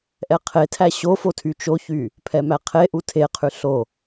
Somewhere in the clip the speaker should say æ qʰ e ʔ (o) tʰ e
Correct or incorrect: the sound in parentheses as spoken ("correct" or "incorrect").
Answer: incorrect